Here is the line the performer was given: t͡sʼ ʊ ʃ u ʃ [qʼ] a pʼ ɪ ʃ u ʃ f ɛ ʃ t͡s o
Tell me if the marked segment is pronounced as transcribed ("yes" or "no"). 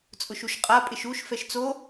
yes